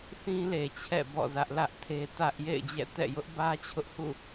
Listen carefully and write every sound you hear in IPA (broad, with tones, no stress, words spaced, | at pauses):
θĩ˦le˨t͡ɕʰɛ̰˦˨bɔ̰˦˨ zä˦ʔlä˦ʔtʰe˦ tä˦ʔ jḛ˦˨ɪ̯d͡ʑɛ̰˦˨tɛ̰˦˨ jʊ˦ʔbä˦t͡ɕʰʊ˦ʔ hṵ˦˨